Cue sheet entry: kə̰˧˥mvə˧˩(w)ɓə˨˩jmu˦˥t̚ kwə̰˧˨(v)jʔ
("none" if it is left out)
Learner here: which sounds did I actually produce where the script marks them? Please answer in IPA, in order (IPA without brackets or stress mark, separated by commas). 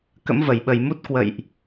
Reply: j, none